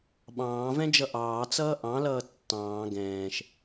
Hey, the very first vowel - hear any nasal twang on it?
yes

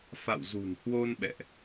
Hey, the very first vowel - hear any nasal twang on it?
no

